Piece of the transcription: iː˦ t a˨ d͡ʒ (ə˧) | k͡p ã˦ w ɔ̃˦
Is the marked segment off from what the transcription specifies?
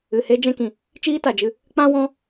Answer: yes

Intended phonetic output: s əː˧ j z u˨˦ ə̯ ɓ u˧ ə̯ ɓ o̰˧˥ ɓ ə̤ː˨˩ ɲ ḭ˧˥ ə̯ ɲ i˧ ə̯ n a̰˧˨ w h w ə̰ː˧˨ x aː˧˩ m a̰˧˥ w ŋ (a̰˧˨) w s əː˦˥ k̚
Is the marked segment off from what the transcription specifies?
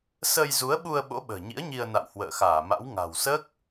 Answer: yes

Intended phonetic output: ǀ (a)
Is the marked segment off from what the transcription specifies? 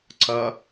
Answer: yes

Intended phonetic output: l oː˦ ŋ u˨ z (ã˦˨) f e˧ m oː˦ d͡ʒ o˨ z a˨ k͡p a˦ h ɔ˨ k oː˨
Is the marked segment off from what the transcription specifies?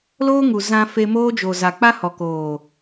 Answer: yes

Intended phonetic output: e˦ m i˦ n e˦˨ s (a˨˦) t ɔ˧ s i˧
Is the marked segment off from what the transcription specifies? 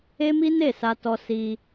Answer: yes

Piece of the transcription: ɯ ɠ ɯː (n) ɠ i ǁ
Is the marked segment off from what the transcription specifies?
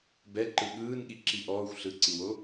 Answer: no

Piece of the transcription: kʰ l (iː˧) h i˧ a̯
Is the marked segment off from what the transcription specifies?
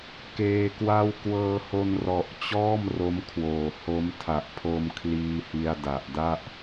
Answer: no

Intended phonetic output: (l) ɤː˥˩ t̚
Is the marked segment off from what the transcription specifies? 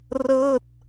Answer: yes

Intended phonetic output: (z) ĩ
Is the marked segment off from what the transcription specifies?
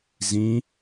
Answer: no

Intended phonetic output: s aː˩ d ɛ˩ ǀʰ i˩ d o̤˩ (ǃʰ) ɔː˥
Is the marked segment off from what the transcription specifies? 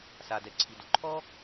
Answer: no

